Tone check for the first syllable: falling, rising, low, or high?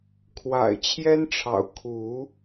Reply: low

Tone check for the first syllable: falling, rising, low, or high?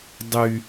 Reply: high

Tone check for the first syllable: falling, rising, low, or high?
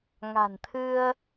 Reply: low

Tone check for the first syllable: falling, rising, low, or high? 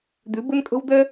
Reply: rising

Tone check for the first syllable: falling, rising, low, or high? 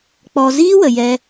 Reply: low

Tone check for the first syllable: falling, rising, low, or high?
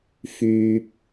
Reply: low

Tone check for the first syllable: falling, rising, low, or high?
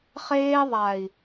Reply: high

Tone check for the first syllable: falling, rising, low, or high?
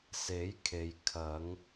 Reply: rising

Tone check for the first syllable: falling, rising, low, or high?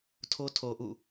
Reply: high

